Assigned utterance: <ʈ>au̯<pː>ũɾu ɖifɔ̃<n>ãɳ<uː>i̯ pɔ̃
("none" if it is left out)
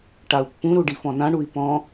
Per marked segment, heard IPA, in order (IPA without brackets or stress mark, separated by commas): ʈ, pː, n, u